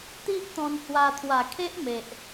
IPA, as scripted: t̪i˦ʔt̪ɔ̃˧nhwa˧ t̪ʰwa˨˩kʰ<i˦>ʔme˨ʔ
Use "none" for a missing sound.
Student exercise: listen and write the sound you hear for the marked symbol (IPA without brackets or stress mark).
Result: e˦